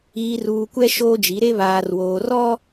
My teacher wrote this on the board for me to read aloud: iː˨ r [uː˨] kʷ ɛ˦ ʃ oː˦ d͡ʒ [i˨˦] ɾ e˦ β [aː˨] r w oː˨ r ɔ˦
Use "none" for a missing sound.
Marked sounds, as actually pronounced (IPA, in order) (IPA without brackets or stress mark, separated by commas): uː˨, i˨˦, aː˨